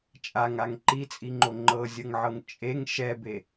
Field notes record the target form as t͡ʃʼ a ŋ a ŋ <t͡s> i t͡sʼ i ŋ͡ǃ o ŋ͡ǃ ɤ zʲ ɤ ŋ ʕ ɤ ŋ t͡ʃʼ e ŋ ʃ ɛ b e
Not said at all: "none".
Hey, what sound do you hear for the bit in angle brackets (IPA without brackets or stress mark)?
ǃ